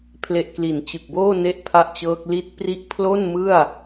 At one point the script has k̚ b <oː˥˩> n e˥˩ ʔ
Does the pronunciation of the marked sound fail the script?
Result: no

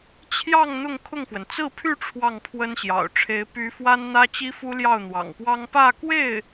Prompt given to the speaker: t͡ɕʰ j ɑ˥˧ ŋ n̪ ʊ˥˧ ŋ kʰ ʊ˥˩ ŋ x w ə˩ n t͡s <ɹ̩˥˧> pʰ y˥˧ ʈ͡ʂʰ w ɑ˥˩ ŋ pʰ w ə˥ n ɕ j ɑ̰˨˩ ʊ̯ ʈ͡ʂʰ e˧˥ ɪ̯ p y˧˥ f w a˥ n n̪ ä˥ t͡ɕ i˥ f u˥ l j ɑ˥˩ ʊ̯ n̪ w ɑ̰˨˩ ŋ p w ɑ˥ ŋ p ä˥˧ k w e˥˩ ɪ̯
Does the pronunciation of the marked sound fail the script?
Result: no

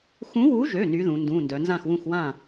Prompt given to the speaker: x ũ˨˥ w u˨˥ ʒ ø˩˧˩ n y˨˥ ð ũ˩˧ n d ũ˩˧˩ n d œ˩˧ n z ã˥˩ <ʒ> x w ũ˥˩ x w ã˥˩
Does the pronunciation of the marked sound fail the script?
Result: yes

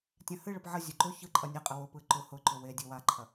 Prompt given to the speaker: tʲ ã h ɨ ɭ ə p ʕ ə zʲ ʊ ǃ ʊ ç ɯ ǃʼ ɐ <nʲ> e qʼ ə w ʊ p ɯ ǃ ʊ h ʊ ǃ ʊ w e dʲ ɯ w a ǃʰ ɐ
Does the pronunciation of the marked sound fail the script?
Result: no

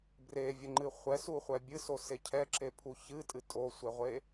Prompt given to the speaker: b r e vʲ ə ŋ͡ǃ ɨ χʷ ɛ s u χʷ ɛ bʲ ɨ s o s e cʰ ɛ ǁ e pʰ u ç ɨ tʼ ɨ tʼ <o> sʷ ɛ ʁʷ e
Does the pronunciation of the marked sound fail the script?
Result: no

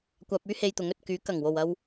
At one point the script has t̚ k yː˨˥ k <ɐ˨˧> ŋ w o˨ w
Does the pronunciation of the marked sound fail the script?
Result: yes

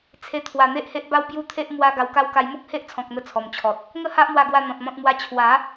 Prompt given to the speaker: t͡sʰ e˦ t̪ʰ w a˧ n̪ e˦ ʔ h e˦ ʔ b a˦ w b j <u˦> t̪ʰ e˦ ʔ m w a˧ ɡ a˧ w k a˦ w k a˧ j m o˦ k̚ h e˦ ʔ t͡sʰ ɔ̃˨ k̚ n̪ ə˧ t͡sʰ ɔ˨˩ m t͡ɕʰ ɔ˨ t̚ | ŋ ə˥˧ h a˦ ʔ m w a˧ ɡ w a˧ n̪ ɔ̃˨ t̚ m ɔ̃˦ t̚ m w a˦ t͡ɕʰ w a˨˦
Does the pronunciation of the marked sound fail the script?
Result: no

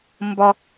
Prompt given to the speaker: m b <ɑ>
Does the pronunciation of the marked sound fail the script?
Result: yes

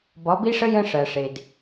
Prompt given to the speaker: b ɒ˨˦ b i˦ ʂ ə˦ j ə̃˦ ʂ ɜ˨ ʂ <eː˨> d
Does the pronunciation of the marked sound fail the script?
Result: yes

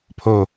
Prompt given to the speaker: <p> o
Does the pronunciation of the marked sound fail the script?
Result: yes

